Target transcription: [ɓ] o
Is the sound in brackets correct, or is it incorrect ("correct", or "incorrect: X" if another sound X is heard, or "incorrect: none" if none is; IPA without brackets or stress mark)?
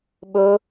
correct